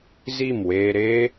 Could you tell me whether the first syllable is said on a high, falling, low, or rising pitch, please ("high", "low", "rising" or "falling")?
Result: falling